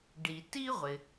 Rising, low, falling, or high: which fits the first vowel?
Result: low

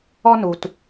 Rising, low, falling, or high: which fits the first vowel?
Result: high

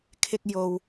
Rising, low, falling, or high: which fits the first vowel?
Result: high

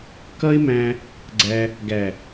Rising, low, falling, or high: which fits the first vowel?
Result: high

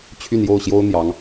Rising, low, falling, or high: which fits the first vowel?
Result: falling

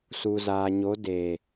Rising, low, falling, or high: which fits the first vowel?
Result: low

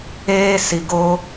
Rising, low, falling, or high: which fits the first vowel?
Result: high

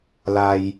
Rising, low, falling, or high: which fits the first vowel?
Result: low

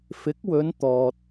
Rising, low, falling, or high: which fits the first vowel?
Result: rising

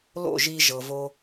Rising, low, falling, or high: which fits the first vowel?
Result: falling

